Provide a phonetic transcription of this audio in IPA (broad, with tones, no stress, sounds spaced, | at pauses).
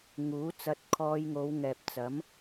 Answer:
ŋ uː˨˥ t͡s ɐ˧ t̚ kʰ ɔː˧ j ŋ o˨˧ w ŋ ɛː˨ p̚ t͡s ɐ˨˥ m